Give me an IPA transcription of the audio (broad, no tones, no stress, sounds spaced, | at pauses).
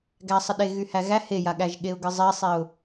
ɡ æ sˤ ə ɗ e ɣ y h æ ɣ æ h e j a ɠ æ ʒ ɠ e ʊ̯ ɡ ɨ zˤ i sˤ i ʊ̯